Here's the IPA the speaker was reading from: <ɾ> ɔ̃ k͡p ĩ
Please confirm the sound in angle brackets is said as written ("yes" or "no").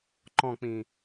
no